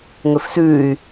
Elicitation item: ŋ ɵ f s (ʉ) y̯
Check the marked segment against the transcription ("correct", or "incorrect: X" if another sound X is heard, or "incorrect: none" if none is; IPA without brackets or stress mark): correct